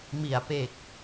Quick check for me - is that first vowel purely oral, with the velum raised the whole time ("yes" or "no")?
yes